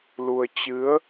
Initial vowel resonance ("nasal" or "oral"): oral